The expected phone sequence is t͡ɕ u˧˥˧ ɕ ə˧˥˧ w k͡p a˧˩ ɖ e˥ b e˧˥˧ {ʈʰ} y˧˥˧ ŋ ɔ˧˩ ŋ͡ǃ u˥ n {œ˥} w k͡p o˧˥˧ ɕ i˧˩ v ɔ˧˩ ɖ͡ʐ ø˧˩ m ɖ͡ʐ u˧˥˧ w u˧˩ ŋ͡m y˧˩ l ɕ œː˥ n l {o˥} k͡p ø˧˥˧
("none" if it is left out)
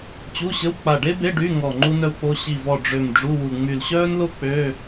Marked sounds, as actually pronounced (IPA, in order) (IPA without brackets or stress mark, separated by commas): ɖ, œ˥, o˥